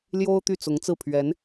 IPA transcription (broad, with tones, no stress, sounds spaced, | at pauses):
l j o˥ ʊ̯ t̪ y˥˩ t͡s ʊ˧˥ ŋ t͡s ɹ̩˥˩ pʰ ɥ ɛ˧˥ n